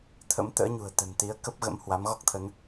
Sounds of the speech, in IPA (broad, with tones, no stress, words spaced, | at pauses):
t̪ʰə̰˧˥mt̪ə̰ː˧˥ɲṳ˨˩ə̯ t̪ə̤˨˩nt̪i˨˦ə̯ kə˦˥p̚ɣə̰˧˥m hwa˨˦mɣɔ˦˥k̚t̪ʰə˨˦n